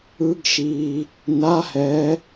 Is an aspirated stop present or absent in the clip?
absent